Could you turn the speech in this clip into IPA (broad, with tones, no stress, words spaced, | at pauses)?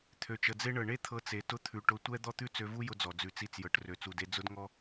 t̪ʰø˨t͡ʃə˨d͡ze˦ɳɤ˨ ɳe˦t̪ʰɤ˧t͡se˨ tʊ˧t̪ʰʉ˨ ʈʊ˧tʷɛ˦ d̪ɔ˦t̪ʉ˦ t͡sø˧vu˦ jʊ˦d͡zɔ˨ d͡zʉ˨t͡si˧t͡sjɤ˨ʈ rø˨t͡su˨de˧ d͡zʊ˦dŋɔ˦